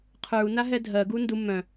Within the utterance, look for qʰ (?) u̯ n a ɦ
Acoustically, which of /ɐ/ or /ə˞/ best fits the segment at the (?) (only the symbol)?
ə˞